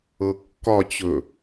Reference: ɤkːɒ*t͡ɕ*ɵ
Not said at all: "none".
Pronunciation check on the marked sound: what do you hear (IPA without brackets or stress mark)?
t͡ɕ